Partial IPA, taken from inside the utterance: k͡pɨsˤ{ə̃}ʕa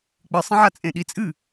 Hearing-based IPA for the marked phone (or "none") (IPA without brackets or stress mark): ə̃